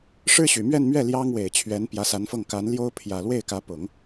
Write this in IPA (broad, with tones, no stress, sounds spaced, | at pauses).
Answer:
ʂ ɻ̩˥ ɕ y˨˩ m ɥ ɛ˥˧ n m ɥ ɛ˥˩ l j ɑ˥ ŋ w e˨˩ ɪ̯ t͡ɕʰ ɥ ɛ˧˥ n p j ä˧˥ s a˧˥ n f ɤ˥˩ ŋ k a˧˥ n l j o˥ ʊ̯ pʰ j ä˨˩ l w e˥˩ ɪ̯ k ä˧˥ p ʊ˨˩˦ ŋ